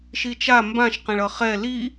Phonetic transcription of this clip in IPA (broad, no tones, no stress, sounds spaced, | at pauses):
ʃ i t͡ʃ a m b ã ʃ q ẽ ɭ ʌ χ ɛ l i